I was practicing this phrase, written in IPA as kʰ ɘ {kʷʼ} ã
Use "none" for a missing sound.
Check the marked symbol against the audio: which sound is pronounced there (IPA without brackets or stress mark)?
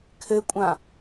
kʷʼ